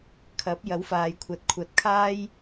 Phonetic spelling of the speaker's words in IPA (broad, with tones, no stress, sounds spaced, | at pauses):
kʰ ɐ˨˥ p̚ j ɐ˨˥ w f aː˨ j kʷʰ ɐ˨ t̚ kʷʰ ɐ˨ t̚ kʰ aː˥ j